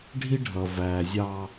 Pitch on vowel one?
high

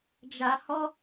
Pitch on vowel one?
low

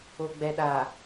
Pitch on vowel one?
low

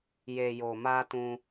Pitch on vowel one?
low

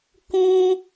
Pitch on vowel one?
high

